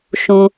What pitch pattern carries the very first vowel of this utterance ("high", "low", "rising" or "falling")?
low